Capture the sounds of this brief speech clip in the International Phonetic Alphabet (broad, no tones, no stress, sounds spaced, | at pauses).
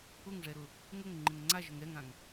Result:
ʊ ŋ ʐ ɛ ɾ ʊ | ŋ ʊ ŋ ŋ͡ǃ ɪ ŋ ŋ͡ǀ a ʒ ʊ ŋ ɾ ɛ ŋ ã ŋ